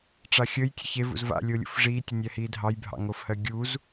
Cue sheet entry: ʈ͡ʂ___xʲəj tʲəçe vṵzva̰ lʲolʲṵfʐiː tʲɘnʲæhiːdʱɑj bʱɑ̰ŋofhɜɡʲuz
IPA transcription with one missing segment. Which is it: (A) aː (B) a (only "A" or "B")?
B